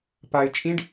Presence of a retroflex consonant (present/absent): present